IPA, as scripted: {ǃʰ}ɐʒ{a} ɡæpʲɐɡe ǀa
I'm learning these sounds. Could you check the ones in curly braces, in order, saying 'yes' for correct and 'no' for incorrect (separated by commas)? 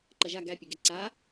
no, yes